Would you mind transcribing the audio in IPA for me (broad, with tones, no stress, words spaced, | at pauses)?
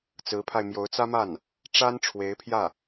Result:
t͡sɹ̩˧˥pʰa˧ɪ̯mjo˧˥ʊ̯ t͡sä˥ma˥˩n | ʈ͡ʂa˥n ʈ͡ʂʰwe˧˥ɪ̯pʰjä˥˩